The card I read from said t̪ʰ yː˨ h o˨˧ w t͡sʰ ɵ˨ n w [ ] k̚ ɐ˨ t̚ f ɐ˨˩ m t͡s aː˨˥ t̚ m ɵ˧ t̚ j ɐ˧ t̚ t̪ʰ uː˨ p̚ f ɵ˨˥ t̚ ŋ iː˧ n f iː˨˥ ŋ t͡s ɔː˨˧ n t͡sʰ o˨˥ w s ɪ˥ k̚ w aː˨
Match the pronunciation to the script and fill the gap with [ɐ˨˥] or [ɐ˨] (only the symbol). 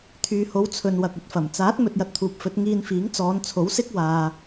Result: ɐ˨